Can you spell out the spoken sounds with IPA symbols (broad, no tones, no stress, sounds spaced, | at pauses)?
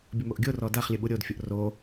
bʲ ə m o ʔ ɡʲ o r ɔ d a χ lʲ ə ɓ u ɾʲ o d fʲ o ʔ r o